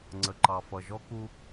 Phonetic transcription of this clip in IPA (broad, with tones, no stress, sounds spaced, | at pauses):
ŋ͡ǀ ə˩ ǃ ɑ˩ f ʌ˩ ʒ ɔ˥ k u˧